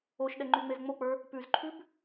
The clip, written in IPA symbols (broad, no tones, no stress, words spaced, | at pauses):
oʃɗɛŋ͡ǃyŋ͡mez ŋ͡mok͡pə˞ | pʉzǃʰʉb